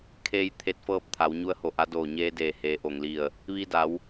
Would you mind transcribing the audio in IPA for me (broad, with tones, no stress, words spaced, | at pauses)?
kʰeː˧j t̪ʰe˧˥t̚fɤː˥˨p̚ t̪ʰa˩˧wɲu˧˥ə̯ho˧˩ʔa˧˥ doː˧˩ɲeː˧ deː˧˩heː˩˧ʔo˩ŋli˧˩ə̯ | ʋi˧da˩˧w